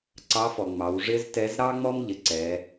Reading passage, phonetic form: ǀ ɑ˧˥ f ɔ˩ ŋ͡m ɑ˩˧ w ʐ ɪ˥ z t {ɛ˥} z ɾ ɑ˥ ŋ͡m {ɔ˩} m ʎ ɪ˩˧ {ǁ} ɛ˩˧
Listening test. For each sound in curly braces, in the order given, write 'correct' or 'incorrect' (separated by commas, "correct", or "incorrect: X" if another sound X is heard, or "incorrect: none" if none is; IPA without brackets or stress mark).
incorrect: ɛ˧˥, incorrect: ɔ˥, incorrect: ǀ